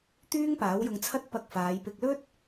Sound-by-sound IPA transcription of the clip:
t̪ yː˥ ŋ p aː˨˥ w j ʊ˧ ŋ t͡sʰ ɐ˥ t̚ p ɐ˧ k̚ f aː˨˧ j p ɪ˧ k̚ l ɵ˥ t̚

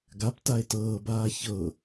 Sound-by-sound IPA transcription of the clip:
ɡ a p t a e̯ t ɤː b aː ç ɤ

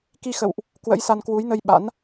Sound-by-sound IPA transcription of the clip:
k i˧ x ə̰˧˨ w ʔ | k w ə̰˧˥ j s a˧ n k w u˨˦ j n ə˧ j ɓ a̰˧˥ n

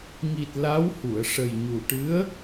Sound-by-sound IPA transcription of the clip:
ŋ i˨˩ t̚ l a˧˥ w h u˨˩˨ ə̯ ʂ ə˨˩ j ɲ u˨˩ ʈ ɨ˧˥ ə̯

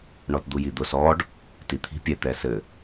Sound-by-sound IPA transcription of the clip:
ɳ ɔ t d̪ u j i d̪ ʊ s ɔ ɖ | t i t̪ʰ i̤ pʲ ɛ t̪ ɛ s ɘ

